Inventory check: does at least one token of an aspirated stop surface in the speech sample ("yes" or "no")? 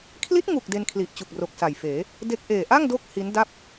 yes